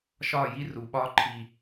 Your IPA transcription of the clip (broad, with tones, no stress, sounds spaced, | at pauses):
ʃ ɒː˦˨ j i˦ r u˨ ɓ ɒː˦ ǃʰ i˨